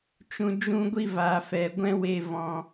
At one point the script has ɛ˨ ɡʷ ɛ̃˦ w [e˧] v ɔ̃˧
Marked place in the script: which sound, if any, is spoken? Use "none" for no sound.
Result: e˧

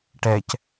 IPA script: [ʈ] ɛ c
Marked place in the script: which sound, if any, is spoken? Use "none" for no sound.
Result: ʈ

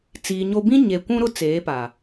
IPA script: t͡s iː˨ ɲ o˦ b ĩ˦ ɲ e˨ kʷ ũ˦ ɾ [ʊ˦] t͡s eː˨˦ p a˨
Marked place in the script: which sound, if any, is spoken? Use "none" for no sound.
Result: ʊ˦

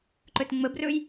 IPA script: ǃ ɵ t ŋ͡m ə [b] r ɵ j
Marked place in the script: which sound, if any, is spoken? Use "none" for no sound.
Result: b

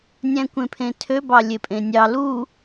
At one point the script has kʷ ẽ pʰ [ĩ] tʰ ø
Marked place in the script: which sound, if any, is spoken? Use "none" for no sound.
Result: ẽ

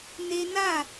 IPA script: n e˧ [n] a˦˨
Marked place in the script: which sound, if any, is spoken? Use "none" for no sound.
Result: n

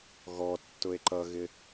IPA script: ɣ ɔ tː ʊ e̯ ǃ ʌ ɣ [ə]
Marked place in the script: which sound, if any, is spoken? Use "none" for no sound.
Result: ɪ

